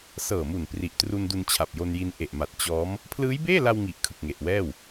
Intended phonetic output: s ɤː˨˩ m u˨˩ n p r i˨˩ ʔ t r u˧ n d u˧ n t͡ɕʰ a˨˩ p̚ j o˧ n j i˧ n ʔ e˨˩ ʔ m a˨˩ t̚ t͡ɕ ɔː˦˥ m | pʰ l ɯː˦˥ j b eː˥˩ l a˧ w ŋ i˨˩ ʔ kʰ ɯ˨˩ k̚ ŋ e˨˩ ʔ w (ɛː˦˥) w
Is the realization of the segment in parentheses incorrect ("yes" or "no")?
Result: yes